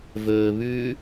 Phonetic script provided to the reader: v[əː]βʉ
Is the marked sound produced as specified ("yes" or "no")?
no